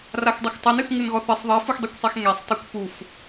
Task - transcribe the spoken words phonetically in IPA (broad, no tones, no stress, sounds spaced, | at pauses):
r a x dˤ ɘ x tˤ ɘ n ɨ x ŋ ɨ n ɣ ɔ θ ɨ sˤ ðˤ e f u x dˤ e kʷ sˤ e x ŋ e sˤ tˤ ɘ kʷ p u f